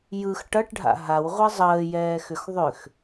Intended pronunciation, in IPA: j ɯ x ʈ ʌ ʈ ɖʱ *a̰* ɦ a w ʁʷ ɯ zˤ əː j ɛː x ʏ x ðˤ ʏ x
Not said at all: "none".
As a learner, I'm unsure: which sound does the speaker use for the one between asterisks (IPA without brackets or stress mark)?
a̰